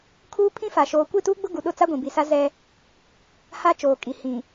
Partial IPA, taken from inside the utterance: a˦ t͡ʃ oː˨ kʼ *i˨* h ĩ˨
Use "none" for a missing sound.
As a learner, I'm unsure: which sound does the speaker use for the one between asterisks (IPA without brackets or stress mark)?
i˨